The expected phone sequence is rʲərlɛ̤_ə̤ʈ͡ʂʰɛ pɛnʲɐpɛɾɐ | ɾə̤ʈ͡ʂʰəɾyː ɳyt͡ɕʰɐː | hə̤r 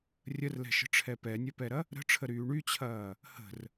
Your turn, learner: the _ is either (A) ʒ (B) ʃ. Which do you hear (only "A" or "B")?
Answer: B